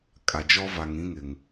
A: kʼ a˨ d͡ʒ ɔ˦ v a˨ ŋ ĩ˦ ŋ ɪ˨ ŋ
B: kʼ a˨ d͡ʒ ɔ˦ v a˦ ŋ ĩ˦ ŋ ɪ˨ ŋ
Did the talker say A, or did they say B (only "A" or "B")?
A